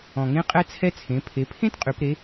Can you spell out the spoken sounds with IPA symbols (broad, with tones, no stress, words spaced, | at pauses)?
ɔ̃˩ŋẽ˧qʼɛ˧t͡sʰɛ˧ t͡sʰẽ˩˧ pʰe˩˧pʰẽ˥tqʼy˩˧p ɾe˧˥